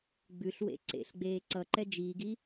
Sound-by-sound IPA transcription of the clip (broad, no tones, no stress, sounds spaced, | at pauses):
ɡ͡b ʉ ɬ w ḛ ǀ ḛ ɬ ɡ͡b eː ǀ ʌ ǃ ɛ d͡ʒ iː ɡ i